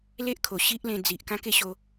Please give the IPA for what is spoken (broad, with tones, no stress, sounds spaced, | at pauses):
l e˦ ʔ kʰ o˨˩ ɕ i˦ ʔ l ẽ˧ d͡z i˨ ʔ k ã˦ k e˥˧ ɕ o˧